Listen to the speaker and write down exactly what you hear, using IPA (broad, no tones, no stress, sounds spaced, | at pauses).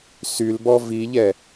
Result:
s y l b ɔ v i ʎ ɛ